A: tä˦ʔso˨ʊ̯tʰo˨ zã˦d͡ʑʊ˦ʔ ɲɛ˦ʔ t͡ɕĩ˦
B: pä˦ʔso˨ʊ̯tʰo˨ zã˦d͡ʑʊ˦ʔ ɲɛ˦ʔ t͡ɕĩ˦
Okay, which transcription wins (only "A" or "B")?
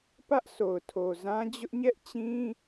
B